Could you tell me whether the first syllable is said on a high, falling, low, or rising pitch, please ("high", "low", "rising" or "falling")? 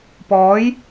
rising